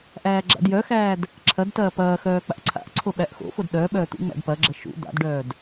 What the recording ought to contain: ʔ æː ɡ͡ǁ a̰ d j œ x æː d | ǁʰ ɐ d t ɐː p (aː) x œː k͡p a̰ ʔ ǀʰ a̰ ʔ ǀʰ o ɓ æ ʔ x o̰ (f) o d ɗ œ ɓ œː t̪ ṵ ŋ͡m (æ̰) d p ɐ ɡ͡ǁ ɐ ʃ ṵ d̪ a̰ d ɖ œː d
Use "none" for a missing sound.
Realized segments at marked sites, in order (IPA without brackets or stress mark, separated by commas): ɐː, f, æ̰